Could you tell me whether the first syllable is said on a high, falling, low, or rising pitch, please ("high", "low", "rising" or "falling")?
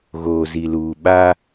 low